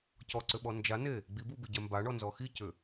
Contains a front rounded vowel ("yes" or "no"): yes